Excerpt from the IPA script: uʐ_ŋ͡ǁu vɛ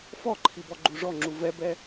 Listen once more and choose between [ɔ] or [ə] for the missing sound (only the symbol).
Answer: ɔ